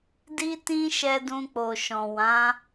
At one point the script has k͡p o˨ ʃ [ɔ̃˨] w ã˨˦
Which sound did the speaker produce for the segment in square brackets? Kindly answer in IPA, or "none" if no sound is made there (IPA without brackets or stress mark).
ɔ̃˨